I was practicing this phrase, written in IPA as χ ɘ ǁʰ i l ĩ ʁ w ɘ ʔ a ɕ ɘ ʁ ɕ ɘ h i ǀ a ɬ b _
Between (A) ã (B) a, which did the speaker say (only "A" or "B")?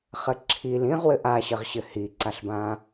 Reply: A